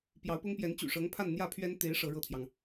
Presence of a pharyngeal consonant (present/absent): absent